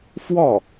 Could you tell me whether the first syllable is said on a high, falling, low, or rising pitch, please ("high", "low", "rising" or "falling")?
falling